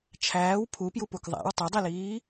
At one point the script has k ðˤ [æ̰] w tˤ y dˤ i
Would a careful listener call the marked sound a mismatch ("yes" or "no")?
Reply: no